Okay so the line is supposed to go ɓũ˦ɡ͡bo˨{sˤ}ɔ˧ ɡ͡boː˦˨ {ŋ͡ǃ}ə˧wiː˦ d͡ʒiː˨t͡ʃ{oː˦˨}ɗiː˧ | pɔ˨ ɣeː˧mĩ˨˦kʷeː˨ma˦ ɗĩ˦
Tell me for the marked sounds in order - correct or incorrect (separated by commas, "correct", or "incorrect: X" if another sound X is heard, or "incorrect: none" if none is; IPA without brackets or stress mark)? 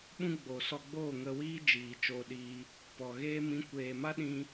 incorrect: s, incorrect: ŋ, incorrect: oː˧